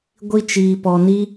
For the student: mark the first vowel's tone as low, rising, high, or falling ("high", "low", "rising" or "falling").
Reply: high